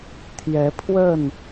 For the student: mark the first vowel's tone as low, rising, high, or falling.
rising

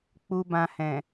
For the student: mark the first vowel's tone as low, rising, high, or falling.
low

